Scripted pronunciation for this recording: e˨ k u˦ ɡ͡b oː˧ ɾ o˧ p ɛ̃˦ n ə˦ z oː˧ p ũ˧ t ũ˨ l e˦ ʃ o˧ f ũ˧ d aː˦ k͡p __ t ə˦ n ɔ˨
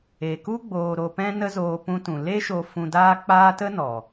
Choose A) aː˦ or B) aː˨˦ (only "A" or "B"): A